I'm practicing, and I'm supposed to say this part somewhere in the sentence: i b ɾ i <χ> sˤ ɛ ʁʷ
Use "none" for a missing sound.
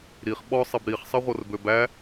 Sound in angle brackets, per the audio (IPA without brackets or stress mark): χ